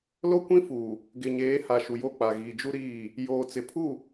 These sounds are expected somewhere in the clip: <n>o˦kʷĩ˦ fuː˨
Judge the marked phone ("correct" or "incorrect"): incorrect